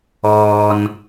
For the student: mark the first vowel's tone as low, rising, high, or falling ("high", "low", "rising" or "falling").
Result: low